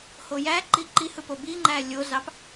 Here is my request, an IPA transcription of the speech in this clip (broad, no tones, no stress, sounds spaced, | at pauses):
h o j æ ǃ i ǃ i h ɯ p o b i ŋ͡ǃ æ lʲ o z ɑ p